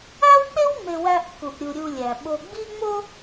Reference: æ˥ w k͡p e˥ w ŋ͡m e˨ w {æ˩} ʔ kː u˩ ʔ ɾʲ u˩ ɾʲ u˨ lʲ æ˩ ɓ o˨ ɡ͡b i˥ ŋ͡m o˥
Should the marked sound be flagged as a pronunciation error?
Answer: yes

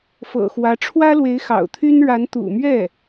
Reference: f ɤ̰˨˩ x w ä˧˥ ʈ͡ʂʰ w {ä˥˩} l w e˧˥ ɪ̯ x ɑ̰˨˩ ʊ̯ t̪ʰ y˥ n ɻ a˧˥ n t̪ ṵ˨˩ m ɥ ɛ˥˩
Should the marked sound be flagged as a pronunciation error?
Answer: yes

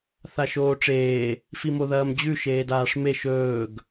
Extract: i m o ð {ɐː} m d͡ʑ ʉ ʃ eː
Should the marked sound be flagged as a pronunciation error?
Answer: no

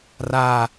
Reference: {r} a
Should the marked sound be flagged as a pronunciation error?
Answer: no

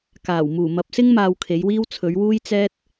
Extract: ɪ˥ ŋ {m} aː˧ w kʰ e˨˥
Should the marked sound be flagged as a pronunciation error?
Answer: no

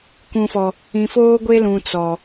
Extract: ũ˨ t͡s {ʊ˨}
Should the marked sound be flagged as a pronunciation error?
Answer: yes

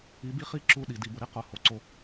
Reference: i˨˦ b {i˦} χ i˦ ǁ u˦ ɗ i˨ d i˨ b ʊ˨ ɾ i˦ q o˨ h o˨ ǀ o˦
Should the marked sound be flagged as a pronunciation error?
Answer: no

